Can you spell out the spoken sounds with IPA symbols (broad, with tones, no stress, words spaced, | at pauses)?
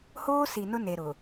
hoː˦si˨ nʊ˦ne˨ɾʊ˨